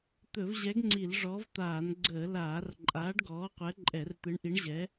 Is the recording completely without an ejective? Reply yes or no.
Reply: no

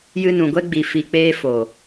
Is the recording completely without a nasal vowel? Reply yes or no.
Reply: no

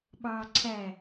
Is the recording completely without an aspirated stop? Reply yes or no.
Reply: no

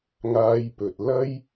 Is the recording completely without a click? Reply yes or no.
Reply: yes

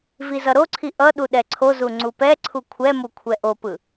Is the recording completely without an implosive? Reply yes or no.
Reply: no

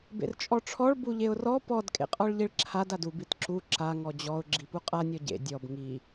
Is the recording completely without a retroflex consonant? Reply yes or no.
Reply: no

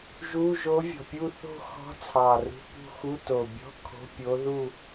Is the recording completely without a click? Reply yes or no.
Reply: yes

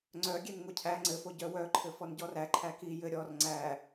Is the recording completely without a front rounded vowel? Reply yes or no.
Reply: no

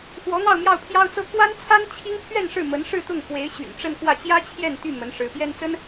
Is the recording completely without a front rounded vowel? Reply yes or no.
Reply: no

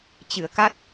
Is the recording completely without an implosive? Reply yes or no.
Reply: yes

